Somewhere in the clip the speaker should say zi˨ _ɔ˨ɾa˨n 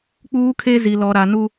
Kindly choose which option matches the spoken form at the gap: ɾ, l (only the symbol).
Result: l